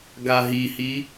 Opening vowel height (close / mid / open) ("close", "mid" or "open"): open